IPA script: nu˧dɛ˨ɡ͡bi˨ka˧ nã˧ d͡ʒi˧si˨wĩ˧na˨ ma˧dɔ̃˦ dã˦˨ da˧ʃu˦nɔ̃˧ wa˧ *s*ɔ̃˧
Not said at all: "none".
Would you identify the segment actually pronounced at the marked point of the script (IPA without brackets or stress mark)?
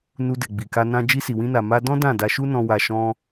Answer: ʃ